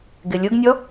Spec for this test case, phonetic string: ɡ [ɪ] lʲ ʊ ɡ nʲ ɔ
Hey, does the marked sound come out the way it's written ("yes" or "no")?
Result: yes